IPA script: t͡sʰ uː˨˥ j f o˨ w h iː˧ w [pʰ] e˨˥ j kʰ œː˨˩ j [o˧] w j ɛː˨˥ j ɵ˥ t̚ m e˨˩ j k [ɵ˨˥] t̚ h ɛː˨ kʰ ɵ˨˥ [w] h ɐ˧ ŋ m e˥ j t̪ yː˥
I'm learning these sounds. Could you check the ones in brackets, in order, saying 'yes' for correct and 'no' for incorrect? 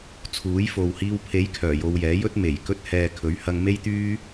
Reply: yes, yes, no, no

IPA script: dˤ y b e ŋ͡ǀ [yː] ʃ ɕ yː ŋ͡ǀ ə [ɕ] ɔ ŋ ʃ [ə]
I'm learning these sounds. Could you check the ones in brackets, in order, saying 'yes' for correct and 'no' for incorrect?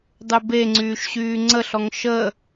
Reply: yes, no, yes

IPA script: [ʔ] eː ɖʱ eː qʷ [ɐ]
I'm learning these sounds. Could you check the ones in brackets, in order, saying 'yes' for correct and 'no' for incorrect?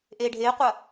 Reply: yes, yes

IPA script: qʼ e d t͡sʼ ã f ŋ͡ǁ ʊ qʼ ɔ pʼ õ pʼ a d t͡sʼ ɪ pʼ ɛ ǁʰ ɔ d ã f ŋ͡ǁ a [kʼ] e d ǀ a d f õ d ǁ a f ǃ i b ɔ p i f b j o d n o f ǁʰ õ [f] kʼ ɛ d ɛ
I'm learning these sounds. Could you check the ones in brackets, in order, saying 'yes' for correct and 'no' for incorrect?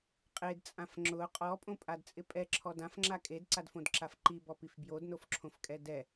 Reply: yes, yes

